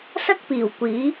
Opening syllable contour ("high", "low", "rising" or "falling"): high